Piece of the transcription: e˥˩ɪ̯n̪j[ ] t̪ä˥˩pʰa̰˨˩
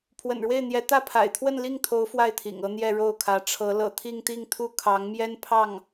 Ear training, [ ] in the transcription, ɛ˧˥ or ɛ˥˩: ɛ˧˥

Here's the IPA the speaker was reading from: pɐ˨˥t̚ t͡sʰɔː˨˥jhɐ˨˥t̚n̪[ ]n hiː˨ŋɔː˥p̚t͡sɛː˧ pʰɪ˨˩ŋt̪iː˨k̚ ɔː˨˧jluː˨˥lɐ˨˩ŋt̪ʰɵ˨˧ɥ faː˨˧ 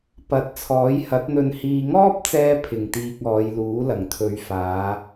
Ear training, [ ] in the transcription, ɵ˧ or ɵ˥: ɵ˧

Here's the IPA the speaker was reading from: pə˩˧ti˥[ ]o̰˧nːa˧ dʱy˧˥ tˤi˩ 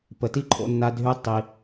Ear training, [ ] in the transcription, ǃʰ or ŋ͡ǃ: ǃʰ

